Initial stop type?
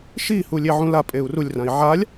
ejective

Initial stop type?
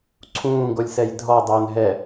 click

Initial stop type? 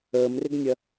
plain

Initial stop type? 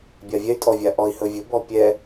plain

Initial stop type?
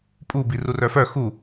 ejective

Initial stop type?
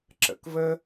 click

